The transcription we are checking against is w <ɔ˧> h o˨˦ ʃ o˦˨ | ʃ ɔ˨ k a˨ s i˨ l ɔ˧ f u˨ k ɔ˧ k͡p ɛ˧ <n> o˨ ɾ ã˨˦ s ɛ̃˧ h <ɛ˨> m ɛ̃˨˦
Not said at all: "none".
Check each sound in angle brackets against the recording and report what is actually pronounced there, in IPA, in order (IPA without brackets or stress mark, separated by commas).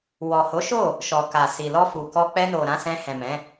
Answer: ɔ˨, n, ɛ̃˨